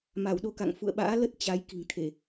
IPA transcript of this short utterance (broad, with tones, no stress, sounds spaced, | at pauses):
m a˧˩ w ɗ o˧ k a̰˧˨ ŋ f ṵ˧˨ ə̯ ɓ a̰ː˧˥ l ə˦˥ t̚ t͡ɕ a˨˦ j k i̤˨˩ ŋ t̪ʰ e˧˩˨